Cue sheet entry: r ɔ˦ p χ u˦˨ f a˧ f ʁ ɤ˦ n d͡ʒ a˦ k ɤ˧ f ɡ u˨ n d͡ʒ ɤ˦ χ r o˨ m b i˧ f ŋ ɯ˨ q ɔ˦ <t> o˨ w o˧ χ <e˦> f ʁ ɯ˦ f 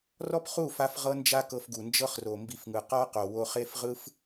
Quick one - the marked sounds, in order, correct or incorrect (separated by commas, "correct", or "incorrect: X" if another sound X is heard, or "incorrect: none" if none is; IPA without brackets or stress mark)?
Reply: incorrect: q, correct